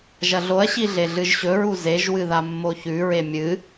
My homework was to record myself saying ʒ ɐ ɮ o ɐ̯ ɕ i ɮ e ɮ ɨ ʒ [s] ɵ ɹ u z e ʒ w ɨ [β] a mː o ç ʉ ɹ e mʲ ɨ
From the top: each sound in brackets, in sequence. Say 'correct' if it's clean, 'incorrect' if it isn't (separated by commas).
incorrect, incorrect